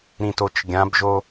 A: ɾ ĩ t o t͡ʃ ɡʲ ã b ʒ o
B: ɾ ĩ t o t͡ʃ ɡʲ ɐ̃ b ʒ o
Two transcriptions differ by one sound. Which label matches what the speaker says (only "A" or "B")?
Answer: A